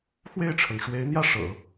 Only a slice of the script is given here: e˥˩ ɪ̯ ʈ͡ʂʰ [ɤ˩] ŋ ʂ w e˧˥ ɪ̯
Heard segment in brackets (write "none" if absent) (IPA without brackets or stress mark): ɤ˩